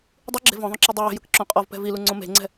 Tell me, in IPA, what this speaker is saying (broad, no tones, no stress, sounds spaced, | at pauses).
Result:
dˤ ɯ ɡ͡ǁ e̤ v ɔ̃ ðˤ õ ǁ i dˤ o j e̤ j ɯ k ǁ õ qʼ ɔ v p ɛ̤ v i l u ŋ͡ǀ õ m e̤ ŋ͡ǀ ɛ̤